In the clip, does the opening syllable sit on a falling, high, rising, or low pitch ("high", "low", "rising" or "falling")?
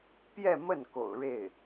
falling